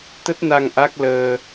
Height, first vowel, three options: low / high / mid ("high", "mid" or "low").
mid